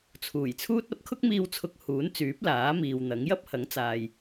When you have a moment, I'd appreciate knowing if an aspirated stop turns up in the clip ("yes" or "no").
yes